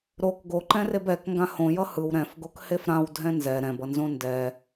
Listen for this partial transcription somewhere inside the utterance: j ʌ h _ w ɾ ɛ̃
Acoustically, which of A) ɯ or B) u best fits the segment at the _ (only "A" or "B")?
A